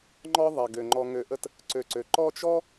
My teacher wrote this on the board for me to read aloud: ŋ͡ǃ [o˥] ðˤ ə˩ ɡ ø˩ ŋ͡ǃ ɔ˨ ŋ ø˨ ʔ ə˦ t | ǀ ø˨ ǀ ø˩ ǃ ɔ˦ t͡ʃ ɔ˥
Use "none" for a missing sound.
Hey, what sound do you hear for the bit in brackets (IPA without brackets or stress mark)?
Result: ɔ˥